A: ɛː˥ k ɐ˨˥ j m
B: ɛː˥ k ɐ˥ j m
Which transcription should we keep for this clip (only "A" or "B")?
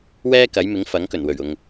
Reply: A